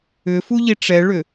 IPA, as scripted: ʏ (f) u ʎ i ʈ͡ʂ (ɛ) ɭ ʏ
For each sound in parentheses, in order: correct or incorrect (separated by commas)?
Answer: correct, correct